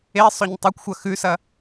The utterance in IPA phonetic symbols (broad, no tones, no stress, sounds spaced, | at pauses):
e sˤ ɵ ɲ tˤ ɵ kʷ xʷ ɐ x ʉ s ɐ